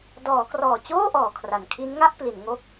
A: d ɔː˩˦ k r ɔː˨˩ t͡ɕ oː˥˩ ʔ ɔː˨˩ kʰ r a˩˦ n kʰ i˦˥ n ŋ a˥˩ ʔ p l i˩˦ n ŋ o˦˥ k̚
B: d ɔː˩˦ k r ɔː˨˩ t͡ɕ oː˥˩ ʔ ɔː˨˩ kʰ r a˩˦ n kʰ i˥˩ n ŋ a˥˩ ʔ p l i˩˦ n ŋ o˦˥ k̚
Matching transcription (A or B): A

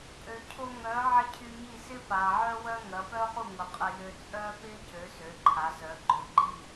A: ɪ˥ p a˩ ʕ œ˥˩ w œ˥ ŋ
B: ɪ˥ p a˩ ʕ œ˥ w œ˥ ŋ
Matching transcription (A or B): B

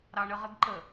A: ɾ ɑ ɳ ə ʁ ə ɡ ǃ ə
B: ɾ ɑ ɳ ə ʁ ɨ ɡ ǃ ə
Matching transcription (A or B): A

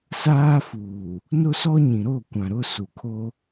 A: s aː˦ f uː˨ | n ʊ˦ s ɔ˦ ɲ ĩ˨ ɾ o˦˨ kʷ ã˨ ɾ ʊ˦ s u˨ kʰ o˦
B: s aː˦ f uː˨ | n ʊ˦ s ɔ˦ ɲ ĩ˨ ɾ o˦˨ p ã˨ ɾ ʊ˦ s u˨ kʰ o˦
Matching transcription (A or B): A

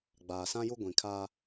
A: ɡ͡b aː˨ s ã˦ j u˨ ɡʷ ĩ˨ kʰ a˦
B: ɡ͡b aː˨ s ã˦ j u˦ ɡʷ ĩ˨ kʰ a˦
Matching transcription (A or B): B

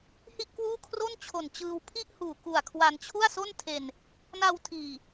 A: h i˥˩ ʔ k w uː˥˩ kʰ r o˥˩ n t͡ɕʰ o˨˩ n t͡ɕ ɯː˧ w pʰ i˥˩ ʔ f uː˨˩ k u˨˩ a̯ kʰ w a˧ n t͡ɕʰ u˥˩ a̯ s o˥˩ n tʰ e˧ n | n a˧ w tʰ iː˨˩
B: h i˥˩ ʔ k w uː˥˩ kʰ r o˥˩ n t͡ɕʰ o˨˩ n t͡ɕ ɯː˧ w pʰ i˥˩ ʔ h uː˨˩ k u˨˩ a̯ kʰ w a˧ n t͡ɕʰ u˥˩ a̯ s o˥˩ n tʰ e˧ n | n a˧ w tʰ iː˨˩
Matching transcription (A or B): B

